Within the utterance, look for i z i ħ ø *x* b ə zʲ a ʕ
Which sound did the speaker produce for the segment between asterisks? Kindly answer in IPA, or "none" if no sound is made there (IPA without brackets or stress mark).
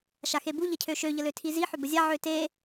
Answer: none